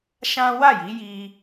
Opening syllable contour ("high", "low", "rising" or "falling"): high